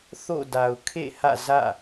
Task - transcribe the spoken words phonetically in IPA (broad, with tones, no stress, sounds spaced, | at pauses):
θ o̰˦˨ d a˨ ʊ̯ kʰ ḛ˦˨ h ä̰˦˨ z ä̰˦˨